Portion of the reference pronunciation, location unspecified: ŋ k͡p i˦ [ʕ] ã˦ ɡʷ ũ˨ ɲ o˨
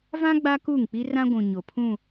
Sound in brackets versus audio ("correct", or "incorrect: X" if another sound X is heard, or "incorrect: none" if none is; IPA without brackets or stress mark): incorrect: r